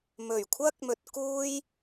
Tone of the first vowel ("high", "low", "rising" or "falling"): low